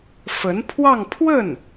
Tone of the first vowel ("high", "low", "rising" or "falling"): rising